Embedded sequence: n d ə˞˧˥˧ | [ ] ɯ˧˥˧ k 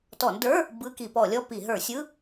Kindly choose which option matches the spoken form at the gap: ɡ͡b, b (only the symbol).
b